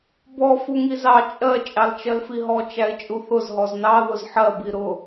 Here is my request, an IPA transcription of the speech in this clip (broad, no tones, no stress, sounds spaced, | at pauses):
b ɔ f u ŋ i z ɑ t͡ʃʼ ɜ t͡ʃʼ ɑ l t͡ʃ ɜ l f i ɦ ɔ t͡ʃ æ ɪ̯ t͡ʃʼ u θ ʊ z ɦ ɔ z n ɑ ð ʊ z ħ ɜ b i ɾ ʊ